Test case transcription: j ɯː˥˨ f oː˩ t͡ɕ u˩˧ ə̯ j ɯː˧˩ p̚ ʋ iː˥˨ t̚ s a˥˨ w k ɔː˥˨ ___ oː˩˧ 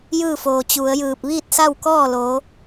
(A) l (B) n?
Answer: A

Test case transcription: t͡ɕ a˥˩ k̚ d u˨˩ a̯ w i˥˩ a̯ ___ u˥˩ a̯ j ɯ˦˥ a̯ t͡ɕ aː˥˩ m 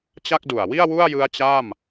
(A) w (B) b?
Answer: A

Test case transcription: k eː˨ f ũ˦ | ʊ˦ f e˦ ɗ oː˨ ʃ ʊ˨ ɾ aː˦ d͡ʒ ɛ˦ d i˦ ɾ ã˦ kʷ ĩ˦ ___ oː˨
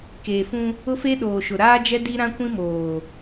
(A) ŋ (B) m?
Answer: B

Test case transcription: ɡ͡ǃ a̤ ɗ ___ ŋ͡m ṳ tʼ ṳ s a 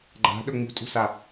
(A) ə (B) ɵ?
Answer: B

